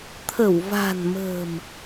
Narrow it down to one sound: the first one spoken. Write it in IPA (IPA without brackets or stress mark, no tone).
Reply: t̪ʰ